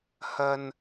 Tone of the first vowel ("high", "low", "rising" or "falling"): low